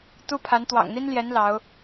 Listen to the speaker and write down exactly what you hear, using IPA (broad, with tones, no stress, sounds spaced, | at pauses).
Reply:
t̪ u˥ pʰ a˧˥ n t̪ w ɑ̰˨˩ ŋ n̪ i˥ n l j ɛ˧˥ n l ɑ˧˥ ʊ̯